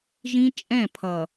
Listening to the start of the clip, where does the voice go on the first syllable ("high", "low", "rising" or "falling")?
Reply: high